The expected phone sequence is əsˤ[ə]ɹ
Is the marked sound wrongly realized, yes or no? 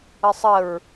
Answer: no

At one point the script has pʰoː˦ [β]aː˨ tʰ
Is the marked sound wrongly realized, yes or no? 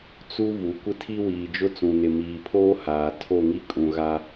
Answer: yes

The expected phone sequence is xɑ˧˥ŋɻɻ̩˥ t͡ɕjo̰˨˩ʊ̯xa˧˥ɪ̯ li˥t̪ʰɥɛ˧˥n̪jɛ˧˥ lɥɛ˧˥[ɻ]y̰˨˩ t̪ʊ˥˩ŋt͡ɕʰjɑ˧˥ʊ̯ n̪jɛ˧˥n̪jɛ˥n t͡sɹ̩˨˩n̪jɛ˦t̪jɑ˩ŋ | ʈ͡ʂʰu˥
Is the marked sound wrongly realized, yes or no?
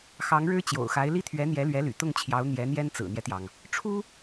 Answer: yes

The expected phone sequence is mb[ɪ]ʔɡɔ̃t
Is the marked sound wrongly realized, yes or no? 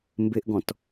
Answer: no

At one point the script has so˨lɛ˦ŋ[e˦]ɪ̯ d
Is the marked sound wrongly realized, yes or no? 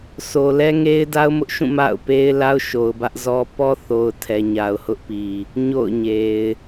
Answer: no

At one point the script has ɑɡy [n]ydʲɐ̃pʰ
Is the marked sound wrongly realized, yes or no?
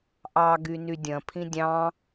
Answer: no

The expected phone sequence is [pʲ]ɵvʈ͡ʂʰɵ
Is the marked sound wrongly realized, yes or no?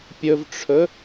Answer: no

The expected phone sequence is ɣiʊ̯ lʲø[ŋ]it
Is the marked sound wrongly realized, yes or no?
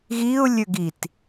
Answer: yes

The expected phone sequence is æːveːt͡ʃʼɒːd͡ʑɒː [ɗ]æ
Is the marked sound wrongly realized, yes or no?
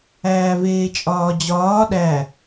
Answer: no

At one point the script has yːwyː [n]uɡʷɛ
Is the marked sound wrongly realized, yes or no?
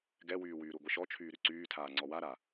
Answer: yes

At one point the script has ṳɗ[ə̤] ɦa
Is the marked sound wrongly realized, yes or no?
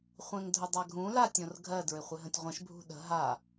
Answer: no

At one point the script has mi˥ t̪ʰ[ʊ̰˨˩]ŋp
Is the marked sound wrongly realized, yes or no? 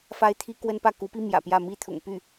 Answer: no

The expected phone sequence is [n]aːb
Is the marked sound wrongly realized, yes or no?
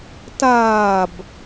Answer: yes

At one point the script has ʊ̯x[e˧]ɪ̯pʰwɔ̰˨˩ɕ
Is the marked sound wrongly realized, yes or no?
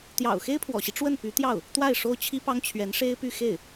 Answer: yes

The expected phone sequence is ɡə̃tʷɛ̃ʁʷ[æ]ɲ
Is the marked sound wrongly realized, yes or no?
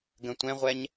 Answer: yes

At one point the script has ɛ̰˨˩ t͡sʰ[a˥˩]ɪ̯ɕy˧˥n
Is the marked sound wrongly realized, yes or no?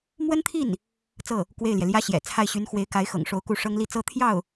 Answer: no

